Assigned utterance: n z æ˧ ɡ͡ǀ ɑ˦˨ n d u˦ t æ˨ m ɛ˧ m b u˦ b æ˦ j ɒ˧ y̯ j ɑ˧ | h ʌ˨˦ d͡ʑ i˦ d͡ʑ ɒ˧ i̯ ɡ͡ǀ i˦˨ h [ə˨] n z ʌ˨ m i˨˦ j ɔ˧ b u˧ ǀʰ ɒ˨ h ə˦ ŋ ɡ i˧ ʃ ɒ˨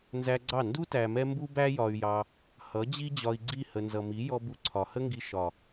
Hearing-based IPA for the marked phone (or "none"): ə˨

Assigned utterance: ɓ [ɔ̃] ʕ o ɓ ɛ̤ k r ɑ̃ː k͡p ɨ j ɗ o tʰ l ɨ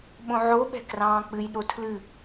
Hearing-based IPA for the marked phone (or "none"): õ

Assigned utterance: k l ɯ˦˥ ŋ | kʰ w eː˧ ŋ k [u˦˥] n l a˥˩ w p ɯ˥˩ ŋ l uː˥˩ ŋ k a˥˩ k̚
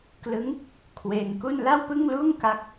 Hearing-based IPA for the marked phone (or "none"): u˥˩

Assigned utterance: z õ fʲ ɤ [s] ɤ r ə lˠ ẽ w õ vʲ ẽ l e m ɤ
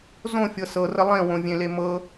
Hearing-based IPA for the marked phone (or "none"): s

